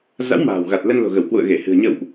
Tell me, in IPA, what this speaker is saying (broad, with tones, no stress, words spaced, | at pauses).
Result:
za̰˧˥wma̤ː˨˩wɣa˨˩t̚ lə˧nlo̤˨˩ɣə˧˩wkwṵ˧˨ə̯ ɣe˧˩hɨ̤˨˩ə̯ ɲə̰˧˨wʔ